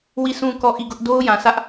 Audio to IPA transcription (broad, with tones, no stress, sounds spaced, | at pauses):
w i˦˨ s ũ˦˨ k ɔ˦˨ ʔ i˦˨ ɡ ʊ˦ ʔ d o˦ ʊ̯ j ã˨ s ä˦ ʔ